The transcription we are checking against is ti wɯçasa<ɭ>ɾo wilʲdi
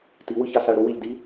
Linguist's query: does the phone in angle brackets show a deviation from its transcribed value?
no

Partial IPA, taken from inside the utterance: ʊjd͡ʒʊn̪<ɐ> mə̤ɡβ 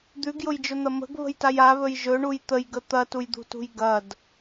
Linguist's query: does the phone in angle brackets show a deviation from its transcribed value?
no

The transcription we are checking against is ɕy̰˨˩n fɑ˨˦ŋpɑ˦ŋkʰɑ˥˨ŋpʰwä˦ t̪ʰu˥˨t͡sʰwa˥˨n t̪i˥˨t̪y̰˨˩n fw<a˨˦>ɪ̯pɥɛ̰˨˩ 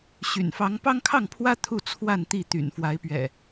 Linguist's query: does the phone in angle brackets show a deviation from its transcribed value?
no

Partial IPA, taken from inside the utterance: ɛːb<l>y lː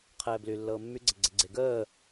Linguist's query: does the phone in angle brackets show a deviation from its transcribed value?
no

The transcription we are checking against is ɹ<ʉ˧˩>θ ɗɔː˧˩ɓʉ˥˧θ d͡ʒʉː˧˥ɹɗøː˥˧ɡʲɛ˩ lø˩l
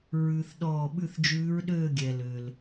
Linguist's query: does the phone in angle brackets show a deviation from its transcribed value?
yes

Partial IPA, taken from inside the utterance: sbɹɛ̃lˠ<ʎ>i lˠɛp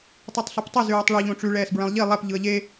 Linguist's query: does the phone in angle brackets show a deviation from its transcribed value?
no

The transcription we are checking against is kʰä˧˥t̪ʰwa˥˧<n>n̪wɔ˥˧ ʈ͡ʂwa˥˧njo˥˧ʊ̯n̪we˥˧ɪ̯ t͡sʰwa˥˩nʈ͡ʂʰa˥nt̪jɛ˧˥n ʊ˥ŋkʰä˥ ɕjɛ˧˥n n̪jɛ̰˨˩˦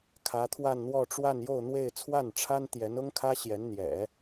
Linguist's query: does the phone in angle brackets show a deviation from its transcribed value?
no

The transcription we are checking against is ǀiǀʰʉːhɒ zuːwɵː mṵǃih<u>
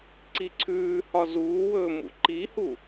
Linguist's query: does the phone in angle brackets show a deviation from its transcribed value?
no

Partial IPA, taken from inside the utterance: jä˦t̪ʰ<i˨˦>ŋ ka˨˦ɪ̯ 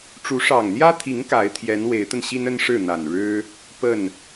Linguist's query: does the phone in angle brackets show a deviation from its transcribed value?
no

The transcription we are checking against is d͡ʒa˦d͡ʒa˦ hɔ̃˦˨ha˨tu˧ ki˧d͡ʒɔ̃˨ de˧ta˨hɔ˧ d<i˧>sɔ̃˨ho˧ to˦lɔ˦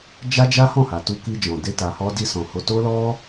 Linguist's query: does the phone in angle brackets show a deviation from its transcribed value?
no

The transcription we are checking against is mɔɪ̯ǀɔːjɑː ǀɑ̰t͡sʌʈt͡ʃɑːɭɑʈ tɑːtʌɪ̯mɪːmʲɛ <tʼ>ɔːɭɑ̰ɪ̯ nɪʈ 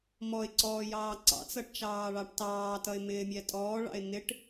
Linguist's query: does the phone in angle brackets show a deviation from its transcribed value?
no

